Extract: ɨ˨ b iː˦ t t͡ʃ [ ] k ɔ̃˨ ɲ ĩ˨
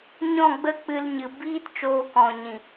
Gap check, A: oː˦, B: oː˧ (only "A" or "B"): B